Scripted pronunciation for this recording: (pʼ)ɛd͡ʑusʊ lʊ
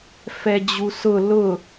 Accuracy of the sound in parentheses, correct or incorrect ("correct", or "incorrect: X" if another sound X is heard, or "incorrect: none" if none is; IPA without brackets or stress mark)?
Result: incorrect: f